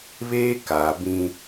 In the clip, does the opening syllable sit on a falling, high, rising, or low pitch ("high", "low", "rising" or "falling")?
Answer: high